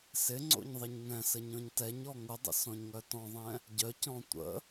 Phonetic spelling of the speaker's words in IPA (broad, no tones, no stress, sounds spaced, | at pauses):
s ɪ ŋ͡ǀ o̰ ɲ ðˤ ɪ ɲ ŋ ɛ̃ s ə ɲ ɔ̃ ɲ t ɛ ɲ ɔ ŋ ʊ dˤ ə̰ s ɔ̃ ɲ ŋ œ t ɔ̃ ðˤ ɛ̃ | ɟ œ c ɔ̃ tʷ ə̰